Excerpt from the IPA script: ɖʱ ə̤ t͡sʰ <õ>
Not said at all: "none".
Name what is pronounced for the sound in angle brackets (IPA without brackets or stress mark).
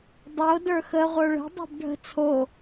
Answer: o